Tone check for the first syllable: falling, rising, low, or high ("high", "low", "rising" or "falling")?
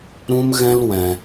high